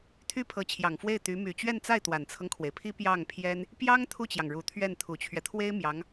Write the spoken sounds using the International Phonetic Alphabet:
t̪ʰy˥pʰɤ˧˥t͡ɕʰjɑ˨˩ŋfwe˥˩ɪ̯ t̪y˧˥ my˨˩t͡ɕɥɛ˥˧nt͡sa˥˩ɪ̯ t̪wa˨˩nt͡sʰɤ˦ŋkʰwe˩ɪ̯pʰi˥ pjɑ˥˩ŋpʰjɛ˥n | pjɑ˥ŋ t̪ʰu˥˩t͡ɕjɑ˩ŋɻu˨˩ t̪ʰɥɛ˥˩n t̪ʰu˨˩t͡ɕʰɥɛ˦ t̪ʰwe˥ɪ̯ mjɑ˧˥ŋ

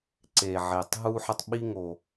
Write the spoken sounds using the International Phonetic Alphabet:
ǀe˩ʕe˩tˤ ɦu˦ħə˦tˤ ɓi˦ŋo˨

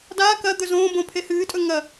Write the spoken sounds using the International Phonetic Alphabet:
daː kɐ d̪ɵzõːbõ pʰehɨːtʼɵ ŋɐ

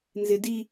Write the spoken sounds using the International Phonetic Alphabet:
nzɪ di

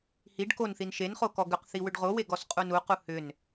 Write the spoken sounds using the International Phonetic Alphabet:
hiɖ konθin ʃenχo kɔɡʏqθi wʏɖʁowe ɡɔsqʼunuqu hʏn

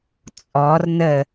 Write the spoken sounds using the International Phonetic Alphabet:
t͡sʼɔr nə

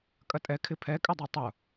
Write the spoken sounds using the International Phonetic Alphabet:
kʼɐtʼɛ kʰɪpʰɛkʼɪdˤy tˤʊ

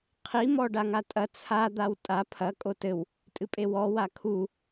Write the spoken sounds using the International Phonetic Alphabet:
qʰimɔ ɖaŋatʼɐ t͡sʰad̪aw tʼa pʰɐ kʼotɘw | tʼɨpʼewɔ wakʰu

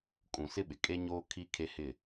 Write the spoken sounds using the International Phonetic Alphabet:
kʼũ˨sɪ˦ɓɪ˨ kʼe˦ɲoː˦ kʰi˦ kʰe˦hɪ˦˨

